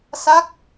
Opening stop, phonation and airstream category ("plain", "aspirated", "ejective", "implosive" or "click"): plain